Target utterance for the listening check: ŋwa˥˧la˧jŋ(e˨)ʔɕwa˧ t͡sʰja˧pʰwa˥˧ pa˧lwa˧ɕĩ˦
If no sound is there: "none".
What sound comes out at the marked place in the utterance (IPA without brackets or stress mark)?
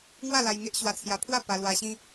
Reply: e˦